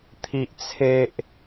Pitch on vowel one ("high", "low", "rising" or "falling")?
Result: high